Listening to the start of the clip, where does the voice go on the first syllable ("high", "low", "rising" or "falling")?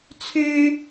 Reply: high